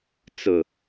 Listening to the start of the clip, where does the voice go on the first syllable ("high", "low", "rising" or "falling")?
low